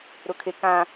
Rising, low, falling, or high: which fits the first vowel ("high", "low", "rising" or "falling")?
low